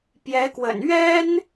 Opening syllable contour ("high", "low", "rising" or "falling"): rising